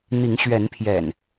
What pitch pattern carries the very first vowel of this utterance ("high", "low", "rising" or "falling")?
rising